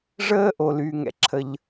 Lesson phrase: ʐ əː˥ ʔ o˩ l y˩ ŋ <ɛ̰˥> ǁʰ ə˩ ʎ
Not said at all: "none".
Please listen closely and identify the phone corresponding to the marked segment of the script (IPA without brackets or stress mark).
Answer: ɛ̰˩